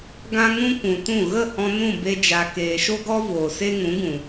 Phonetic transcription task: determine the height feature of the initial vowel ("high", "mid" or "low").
low